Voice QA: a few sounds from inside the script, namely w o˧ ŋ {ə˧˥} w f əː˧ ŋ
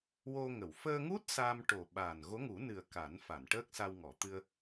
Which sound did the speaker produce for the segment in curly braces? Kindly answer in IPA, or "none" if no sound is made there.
ə˨˩˨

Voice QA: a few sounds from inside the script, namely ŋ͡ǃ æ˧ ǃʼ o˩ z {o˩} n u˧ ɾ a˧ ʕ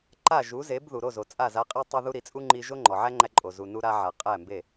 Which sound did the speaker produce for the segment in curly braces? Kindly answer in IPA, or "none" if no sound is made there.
u˩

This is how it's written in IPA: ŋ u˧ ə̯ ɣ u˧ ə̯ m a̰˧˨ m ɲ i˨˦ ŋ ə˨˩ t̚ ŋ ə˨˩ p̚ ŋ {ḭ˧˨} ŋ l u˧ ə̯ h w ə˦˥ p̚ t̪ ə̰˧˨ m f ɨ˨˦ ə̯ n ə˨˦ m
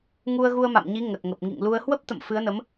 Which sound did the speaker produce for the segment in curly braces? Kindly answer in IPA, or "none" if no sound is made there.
ḭ˧˨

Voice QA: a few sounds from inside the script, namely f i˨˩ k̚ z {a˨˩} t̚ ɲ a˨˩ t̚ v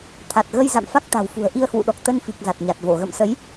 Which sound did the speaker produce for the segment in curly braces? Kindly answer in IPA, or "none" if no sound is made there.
a˨˩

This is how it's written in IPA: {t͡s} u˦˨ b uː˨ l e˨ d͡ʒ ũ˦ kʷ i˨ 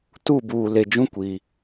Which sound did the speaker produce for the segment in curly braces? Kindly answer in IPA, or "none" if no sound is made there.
t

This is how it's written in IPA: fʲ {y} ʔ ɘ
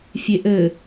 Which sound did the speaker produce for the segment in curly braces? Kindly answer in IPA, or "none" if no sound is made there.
e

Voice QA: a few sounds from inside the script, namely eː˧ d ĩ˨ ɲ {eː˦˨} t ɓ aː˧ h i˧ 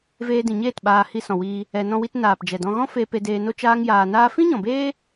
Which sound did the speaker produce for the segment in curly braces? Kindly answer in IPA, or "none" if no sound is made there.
eː˦˨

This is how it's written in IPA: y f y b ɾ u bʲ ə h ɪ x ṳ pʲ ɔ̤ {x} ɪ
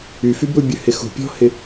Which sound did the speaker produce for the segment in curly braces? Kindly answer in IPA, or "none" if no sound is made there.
h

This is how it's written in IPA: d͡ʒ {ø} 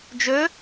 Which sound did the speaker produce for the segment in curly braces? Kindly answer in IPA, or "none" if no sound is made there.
ø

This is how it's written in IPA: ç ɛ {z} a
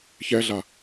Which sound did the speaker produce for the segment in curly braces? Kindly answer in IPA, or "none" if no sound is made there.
ɮ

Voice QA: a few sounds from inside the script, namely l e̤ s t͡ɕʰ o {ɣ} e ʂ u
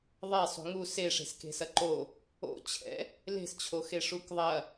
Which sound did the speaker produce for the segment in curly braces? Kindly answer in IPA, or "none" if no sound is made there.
x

